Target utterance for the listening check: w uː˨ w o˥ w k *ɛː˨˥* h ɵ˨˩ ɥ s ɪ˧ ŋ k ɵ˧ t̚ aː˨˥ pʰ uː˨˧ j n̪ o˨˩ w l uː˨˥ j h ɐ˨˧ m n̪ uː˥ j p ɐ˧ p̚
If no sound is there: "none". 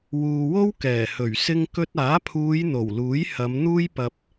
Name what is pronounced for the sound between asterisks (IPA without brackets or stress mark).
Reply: ɛː˨˩